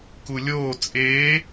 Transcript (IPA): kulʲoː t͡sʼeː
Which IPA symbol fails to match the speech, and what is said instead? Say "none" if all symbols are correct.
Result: none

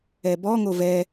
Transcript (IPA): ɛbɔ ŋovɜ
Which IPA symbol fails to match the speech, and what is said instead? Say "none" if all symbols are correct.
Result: ɜ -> ɛ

